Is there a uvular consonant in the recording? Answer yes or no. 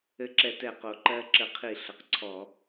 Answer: yes